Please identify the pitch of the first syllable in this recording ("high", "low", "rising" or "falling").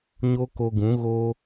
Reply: high